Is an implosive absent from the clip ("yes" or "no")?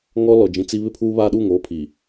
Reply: no